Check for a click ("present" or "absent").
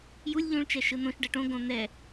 absent